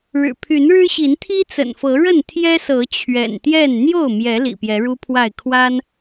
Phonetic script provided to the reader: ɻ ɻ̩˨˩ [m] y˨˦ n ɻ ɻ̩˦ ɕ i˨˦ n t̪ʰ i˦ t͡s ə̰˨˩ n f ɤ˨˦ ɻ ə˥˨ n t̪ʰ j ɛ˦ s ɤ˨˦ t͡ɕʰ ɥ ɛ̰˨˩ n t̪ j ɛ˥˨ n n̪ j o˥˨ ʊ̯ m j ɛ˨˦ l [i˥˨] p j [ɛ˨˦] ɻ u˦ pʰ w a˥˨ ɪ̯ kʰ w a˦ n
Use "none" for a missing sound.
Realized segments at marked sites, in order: pʰ, ḭ˨˩, ɛ˨˦

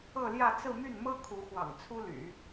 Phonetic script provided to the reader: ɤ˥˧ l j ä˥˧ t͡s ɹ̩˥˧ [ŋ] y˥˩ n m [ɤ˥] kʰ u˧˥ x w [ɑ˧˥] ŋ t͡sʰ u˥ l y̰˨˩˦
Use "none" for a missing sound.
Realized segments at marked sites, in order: m, ɤ˥, ɑ̰˨˩

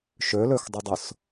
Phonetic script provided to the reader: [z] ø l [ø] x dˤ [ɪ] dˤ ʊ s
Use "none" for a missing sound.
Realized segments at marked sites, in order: ʃ, ø, ɪ

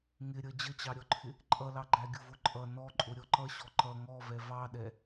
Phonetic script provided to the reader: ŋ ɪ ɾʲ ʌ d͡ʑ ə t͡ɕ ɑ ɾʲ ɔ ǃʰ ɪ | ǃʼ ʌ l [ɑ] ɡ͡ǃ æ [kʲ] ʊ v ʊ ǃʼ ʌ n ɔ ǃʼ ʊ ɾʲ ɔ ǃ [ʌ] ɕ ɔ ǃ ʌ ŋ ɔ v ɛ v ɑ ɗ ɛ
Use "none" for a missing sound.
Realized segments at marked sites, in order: ɑ, ɡʲ, ʌ

